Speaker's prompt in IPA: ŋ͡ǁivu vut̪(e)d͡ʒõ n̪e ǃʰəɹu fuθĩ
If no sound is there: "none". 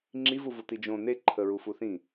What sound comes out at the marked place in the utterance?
i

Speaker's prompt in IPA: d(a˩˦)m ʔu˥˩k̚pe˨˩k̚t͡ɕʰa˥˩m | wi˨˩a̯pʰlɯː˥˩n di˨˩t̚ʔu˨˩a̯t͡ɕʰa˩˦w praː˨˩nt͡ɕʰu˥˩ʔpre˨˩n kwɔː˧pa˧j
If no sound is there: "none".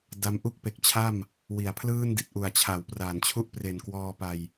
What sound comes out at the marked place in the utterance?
a˦˥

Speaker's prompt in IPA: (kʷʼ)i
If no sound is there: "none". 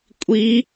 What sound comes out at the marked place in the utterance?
kʷʼ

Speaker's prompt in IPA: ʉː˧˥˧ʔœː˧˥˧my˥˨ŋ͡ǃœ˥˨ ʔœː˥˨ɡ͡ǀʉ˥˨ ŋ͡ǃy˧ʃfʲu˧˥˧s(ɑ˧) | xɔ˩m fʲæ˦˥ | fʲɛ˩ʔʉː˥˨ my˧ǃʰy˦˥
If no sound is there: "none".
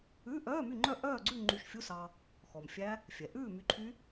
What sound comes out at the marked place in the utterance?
ɑ˧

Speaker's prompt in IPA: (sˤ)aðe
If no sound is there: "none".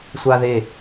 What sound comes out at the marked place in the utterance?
sʷ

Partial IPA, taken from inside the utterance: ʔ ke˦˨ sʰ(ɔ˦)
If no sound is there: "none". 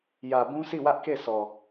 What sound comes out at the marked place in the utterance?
ɔ˨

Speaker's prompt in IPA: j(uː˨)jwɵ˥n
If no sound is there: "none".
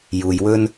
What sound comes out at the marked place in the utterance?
uː˨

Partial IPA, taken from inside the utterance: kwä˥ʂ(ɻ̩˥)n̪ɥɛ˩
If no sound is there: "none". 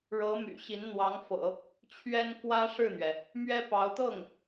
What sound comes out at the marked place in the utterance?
ɻ̩˥˩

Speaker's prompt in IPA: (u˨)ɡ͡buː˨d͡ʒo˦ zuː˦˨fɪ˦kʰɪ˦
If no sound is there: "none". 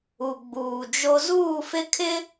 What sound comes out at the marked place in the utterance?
u˨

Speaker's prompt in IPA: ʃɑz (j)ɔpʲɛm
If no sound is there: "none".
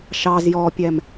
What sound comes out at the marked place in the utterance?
j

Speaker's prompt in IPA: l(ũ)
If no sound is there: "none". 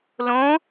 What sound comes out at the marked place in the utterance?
õ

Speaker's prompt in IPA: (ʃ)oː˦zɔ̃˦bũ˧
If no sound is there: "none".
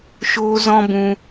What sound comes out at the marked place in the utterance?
ʃ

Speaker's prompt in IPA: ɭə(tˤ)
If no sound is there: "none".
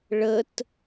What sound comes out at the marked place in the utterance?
t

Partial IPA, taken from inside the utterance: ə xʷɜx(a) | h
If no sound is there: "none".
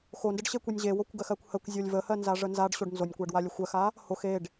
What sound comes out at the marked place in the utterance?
a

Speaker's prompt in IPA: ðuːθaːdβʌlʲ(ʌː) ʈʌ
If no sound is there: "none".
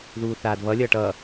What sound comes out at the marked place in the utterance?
ʌː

